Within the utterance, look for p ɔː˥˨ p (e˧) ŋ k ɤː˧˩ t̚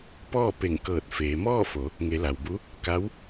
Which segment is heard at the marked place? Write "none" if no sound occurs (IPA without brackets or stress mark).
e˧˩